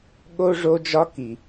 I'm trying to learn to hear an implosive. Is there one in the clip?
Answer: yes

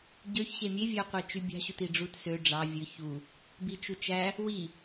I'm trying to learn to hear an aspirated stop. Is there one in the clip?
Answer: no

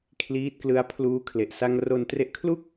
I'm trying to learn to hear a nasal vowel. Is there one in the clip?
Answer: no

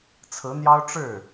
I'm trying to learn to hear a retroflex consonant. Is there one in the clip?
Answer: yes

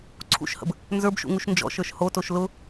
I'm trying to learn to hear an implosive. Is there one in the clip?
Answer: no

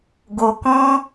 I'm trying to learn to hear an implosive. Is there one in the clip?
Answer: no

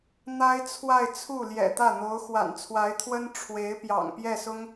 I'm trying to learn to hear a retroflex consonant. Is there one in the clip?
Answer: yes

